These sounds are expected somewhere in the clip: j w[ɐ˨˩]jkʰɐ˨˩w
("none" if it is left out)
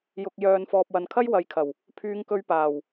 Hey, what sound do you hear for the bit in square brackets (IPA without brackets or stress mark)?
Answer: ɐ˨